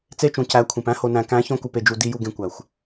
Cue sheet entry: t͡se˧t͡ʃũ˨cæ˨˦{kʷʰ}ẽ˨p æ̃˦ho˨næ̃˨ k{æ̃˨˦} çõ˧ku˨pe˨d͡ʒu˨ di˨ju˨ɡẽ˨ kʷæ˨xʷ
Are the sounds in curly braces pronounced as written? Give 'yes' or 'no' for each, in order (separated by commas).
yes, yes